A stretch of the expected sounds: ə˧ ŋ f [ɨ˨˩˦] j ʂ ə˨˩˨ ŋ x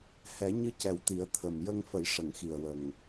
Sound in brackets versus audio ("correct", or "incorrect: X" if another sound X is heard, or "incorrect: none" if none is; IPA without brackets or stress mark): incorrect: ə˨˩˦